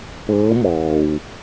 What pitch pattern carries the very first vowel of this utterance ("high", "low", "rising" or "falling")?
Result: rising